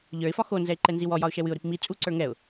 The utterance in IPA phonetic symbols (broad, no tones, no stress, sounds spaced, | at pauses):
ʎ ə˞ ɪ̯ f ɒ x o n z ɛ ɪ̯ ǃ ɛ n z i w ɔ j ɒ ʊ̯ ʃ ɛ w ɨ ʊ̯ ɾ i p m i t͡sʼ u ǀ ə˞ ŋ ɛ ʊ̯